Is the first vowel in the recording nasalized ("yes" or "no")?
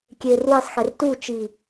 no